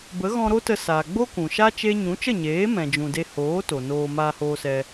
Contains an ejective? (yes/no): no